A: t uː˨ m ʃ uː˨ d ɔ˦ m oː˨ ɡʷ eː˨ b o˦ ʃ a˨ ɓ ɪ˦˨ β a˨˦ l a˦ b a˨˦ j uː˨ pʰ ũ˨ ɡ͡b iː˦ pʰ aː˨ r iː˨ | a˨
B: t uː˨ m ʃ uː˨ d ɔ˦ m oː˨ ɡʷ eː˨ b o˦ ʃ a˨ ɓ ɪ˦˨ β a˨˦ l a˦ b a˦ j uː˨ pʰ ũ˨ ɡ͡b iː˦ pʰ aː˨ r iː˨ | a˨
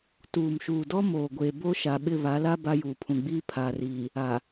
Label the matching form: B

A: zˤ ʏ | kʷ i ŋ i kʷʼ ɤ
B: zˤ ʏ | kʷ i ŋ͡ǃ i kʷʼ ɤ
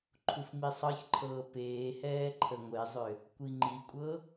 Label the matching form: B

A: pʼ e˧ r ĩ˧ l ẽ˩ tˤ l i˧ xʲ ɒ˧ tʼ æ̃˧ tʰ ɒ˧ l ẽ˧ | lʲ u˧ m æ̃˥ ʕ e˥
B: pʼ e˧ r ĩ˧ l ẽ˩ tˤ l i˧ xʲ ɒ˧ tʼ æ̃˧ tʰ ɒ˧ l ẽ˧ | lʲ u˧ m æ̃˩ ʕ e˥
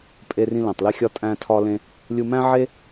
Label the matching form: A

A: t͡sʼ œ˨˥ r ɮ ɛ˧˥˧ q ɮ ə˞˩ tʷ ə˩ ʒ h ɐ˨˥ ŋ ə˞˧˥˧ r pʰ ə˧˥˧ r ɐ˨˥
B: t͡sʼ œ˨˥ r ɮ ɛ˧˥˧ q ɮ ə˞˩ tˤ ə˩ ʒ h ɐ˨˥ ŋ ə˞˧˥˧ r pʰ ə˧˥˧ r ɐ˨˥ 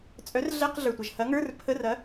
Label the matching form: A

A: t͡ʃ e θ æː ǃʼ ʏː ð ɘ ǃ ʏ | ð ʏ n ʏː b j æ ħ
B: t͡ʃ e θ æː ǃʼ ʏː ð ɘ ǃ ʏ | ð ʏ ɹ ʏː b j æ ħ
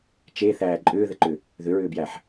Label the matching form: B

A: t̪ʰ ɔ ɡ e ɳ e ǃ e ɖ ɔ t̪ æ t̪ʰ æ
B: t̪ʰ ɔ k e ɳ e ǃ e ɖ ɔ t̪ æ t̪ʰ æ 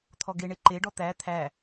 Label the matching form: A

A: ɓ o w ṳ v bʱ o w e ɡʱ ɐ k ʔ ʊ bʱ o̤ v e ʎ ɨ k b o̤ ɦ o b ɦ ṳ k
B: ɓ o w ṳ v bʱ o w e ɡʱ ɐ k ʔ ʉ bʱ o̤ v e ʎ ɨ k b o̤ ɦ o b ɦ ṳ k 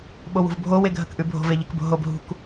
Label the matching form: B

